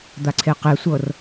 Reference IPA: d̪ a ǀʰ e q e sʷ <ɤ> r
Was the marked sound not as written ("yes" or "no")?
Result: no